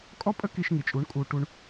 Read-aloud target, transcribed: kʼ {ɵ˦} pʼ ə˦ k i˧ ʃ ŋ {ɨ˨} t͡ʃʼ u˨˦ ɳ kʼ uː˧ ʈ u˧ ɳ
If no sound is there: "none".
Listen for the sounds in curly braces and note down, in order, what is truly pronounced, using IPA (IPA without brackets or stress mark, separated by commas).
ɔ˦, i˨